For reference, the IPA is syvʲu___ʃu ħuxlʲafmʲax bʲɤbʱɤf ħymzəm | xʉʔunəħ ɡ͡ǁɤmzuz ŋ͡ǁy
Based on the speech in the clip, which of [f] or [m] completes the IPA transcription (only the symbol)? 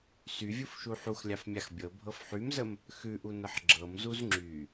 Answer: f